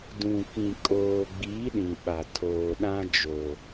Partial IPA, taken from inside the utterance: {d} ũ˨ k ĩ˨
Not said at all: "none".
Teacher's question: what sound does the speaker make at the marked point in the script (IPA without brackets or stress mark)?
d